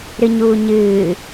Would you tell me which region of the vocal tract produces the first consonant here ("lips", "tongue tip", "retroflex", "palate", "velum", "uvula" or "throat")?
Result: tongue tip